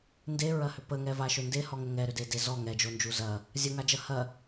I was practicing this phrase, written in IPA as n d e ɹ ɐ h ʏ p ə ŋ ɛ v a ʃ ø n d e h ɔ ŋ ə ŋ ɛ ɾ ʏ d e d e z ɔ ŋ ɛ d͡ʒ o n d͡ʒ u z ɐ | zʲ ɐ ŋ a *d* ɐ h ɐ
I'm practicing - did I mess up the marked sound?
yes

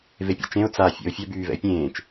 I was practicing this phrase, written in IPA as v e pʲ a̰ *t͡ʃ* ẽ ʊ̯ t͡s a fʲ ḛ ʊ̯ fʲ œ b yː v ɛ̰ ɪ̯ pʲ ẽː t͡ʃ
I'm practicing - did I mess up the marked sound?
no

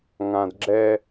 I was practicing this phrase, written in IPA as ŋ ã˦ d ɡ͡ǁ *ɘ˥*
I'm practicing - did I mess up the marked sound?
yes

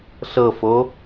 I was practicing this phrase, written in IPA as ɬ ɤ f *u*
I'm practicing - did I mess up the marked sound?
yes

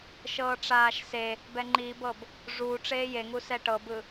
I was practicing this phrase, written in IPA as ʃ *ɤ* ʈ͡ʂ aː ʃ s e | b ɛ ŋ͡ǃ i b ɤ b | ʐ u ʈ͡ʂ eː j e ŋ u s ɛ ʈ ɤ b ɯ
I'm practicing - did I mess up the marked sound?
yes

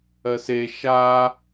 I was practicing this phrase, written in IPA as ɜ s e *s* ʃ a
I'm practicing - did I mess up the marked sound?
yes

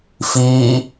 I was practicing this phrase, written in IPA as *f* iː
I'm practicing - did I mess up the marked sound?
no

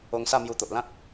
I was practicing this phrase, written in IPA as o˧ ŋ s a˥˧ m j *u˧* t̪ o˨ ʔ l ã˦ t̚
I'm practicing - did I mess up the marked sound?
no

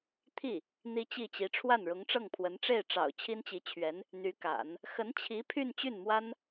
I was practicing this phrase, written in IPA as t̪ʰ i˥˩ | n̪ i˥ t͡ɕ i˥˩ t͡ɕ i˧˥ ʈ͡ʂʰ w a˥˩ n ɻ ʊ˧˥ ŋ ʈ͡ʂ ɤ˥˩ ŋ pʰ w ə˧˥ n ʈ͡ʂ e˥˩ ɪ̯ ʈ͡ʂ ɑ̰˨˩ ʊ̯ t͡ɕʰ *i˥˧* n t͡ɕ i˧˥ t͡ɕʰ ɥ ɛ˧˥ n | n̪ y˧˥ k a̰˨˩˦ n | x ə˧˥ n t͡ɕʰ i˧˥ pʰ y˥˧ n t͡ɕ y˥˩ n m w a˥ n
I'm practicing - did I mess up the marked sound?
yes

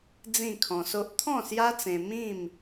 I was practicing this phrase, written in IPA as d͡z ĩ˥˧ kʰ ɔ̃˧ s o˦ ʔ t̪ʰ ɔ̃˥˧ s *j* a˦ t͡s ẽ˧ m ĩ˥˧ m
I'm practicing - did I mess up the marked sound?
no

